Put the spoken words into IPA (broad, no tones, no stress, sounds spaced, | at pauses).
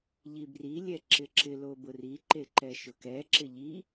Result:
ʎ i b r i lʲ ɛ ǁ ɪ ǁ ɪ l o b ʊ r i ǃ e ǃ ɛ ʃ ʊ k ɛ ǁ ɪ ʎ i